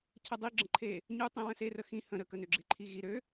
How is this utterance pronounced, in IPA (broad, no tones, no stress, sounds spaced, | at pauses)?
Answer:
cʰ ə dˤ i ɡ͡ǁ ə̃ ǃʰ e | ɲ u tˤ ĩ w ə̃ s e r ə x ĩ h ə̃ ɾ ə k ə n ø ɡ͡ǁ e̤ ǃʰ i ɣ i ɾ ø